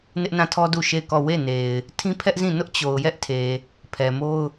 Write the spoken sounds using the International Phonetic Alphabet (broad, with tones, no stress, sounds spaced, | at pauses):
n ɪ˦ ʔ n ã˦˨ tʰ ɔ˦ d u˦˨ ʃ e˦˨ ɪ̯ k ɔ˦˨ w e˦˨ n e˨ ɪ̯ | tʰ ĩ˦ pʰ ɛ˦ ʔ z ĩ˦˨ n ʊ˦ ʔ t͡ɕ o˨ ʊ̯ j ɛ˦ ʔ tʰ e˨ | pʰ ɛ˨ m o˦ ʊ̯